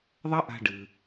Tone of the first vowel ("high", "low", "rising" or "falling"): high